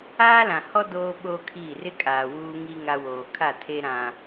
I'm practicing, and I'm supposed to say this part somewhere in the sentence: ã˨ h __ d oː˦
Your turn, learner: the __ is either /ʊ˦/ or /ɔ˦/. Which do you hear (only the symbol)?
ɔ˦